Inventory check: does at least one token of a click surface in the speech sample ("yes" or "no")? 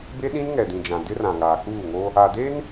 no